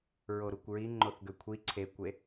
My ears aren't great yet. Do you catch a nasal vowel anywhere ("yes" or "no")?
no